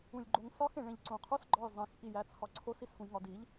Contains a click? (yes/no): yes